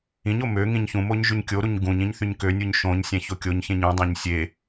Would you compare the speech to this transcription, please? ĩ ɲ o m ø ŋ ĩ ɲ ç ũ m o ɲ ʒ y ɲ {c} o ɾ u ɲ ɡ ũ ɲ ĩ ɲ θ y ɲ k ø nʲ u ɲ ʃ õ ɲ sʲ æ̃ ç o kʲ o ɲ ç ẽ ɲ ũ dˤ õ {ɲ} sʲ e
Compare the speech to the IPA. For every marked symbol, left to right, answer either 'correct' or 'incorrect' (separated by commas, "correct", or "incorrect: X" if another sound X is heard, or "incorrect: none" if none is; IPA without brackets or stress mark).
incorrect: kʲ, correct